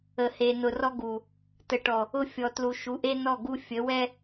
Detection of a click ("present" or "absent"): absent